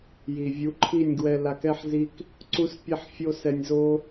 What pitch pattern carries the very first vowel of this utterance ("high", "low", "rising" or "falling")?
low